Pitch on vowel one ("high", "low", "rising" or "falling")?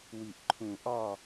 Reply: low